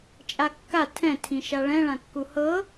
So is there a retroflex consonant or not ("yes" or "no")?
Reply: yes